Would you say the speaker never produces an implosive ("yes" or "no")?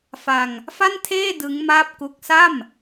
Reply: yes